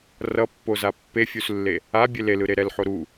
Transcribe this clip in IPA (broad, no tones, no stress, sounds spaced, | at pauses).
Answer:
r ʌ pː o z a pː e fʲ u s lː e | a bʲ e l e l ɯ ɾ e ɾ ɛ l ħ o ɾ u